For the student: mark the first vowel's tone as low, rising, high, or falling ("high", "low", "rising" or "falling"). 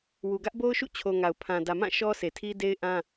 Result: low